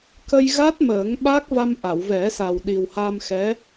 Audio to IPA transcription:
kə˧jɣa˦˥t̚ məː˨˩˦ŋɓa˦˥k̚va˧m ʔa˨˩˨wvɛ˨˩˦sa˨˩w ɗi˨˩wha˧mxɛ˧˥

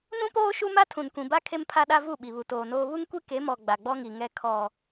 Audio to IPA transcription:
nũ˦poː˦ ʃu˦ma˦tʰũ˨n kʷĩ˨ba˦ kʰe˦mpʰa˦ɗa˦ vu˦˨ɓi˨βu˨ toː˨noː˦ βu˦ŋkʷi˦ ke˨˦mɔ˨ ɡ͡ba˨ɡ͡bɔ˦ŋi˨ŋɛ˦ kʰɔ˦

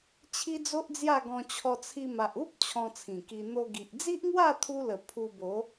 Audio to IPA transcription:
t͡ɕʰi˦d͡zo˦ʔd͡zja˥˧ ɡɔ̃˧t͡ɕʰɔ˧ t͡sʰi˧ma˨ʔ u˦p̚ t͡ɕʰɔ̃˧t͡sʰĩ˨˩ki˧ n̪o˧ɡi˨ʔ d͡zi˦ʔŋwa˥˧t̪ʰu˧lə˨˩ pʰu˧bo˨˦

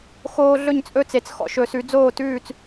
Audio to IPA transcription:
xoː˧ ɮɵ˥˨ɲt͡sʼɵ˥˨t͡se˩˥t͡s xɔ̰˧ʃɵ˨˩˦sʉ˩˥ d͡zoː˥˨tʉː˥˨t͡s

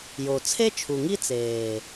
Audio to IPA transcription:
jo˨ t͡sʰe˦t͡ʃʰu˨ŋi˦ t͡seː˨

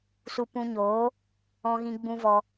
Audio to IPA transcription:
su˧ pũ˧ɲoː˨˦ | ɔ̃˦ɣĩ˦ɡ͡bũ˦vɔ˧

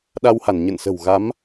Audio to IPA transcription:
ɗa˧wha˧˩n ɲə̰˧˨nsə̤˨˩wɣa˨˦m

